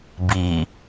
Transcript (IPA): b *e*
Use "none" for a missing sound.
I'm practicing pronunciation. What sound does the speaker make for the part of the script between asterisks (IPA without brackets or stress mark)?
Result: i